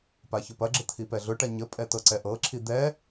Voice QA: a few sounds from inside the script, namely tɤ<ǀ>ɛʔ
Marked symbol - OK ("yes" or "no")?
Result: yes